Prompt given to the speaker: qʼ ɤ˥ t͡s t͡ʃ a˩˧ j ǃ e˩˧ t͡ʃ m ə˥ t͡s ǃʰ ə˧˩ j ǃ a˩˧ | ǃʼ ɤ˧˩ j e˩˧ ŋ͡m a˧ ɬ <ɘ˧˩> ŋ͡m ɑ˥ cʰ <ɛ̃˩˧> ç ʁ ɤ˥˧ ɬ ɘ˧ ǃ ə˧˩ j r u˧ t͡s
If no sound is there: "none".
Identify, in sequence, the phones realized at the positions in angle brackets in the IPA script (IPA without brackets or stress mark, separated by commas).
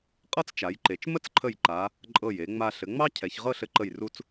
ɘ˩˧, ɛ˩˧